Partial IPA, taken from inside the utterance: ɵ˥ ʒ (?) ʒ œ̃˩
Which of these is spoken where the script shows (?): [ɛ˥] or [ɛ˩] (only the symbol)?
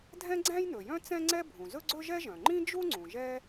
ɛ˥